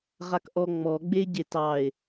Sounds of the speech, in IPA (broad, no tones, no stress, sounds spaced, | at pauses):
ʁ a k ʔ ɔ ŋ͡m ɔ ɡ͡b e ɟ e t ɑ e̯